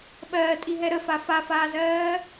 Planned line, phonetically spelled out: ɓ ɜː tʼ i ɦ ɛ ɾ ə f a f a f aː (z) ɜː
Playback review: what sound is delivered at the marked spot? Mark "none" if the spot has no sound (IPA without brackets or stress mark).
z